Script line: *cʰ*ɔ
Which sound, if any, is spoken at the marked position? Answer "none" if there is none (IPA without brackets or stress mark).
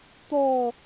t̪